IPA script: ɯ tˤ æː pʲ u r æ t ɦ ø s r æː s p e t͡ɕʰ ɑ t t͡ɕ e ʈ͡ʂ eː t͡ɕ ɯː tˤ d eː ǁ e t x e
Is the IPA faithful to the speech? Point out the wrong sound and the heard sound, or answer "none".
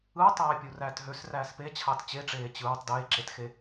none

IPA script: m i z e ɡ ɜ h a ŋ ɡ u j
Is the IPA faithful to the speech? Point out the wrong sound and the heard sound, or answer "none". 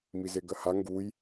none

